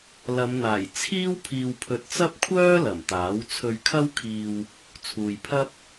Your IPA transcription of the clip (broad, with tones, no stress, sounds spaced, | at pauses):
l ɐ˨˧ m n̪ aː˨˩ j t͡sʰ iː˥ w pʰ iː˨ w pʰ ɵ˨ t̚ t͡s ɐ˥ p̚ kʷʰ œː˥ l ɐ˨˩ m t̪ aː˨˥ w t͡sʰ ɵ˧ ɥ kʰ ɐ˥ w kʰ iː˧ w | t͡sʰ uː˨ j pʰ ɐ˥ p̚